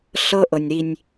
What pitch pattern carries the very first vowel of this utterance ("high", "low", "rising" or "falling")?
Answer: high